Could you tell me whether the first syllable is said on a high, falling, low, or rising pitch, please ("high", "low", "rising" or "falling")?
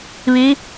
rising